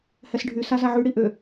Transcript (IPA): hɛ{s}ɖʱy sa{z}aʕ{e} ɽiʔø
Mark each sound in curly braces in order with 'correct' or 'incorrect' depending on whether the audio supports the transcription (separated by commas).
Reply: correct, correct, incorrect